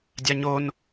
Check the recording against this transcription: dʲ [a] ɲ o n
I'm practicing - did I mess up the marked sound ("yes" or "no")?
no